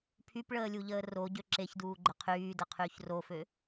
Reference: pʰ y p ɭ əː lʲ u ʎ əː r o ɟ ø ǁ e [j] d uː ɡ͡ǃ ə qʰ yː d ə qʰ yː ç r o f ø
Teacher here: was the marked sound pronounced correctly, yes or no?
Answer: no